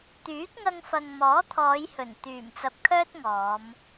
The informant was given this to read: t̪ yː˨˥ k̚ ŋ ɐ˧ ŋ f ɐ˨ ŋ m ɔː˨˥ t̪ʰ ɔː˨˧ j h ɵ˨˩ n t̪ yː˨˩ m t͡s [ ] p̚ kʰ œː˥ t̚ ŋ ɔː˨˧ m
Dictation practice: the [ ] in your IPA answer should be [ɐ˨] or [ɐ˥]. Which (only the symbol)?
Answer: ɐ˨